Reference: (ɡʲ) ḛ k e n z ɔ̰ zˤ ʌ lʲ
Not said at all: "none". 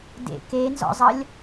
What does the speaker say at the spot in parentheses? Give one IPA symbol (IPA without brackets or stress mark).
d